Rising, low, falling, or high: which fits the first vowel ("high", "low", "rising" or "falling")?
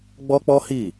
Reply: high